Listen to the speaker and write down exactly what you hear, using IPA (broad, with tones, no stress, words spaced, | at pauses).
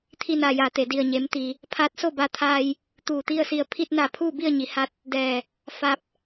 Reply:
t̪ʰi˧naː˩ja˩t̪e˩ di˧˩ə̯ɲe˩˧m t̪i˩ | pʰaː˧˥t̚so˥˨ba˧t̪ʰaː˧j | t̪uː˧˩t̪i˥˨ə̯si˧ə̯ pʰi˧t̚na˧˩ pʰuː˥˨bi˥˨ə̯ɲi˩˧ ha˧˥t̚ | dɛː˧˩ | fa˧p̚